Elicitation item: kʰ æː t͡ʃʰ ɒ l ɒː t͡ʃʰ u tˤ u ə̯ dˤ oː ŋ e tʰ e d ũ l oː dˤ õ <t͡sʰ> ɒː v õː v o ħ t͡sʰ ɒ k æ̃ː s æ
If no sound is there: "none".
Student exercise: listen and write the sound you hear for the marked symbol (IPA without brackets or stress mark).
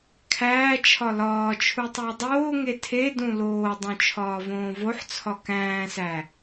t͡ʃʰ